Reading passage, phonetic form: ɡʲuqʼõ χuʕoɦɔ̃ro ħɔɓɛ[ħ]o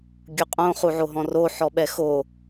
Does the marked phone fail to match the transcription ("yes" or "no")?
yes